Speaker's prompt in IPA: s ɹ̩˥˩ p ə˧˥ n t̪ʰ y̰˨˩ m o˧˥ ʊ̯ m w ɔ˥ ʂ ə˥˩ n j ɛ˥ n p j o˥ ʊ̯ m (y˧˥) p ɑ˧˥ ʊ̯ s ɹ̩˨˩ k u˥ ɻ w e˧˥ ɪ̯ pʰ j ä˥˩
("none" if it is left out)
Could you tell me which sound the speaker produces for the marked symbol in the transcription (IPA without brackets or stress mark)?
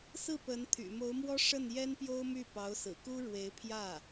y˥˩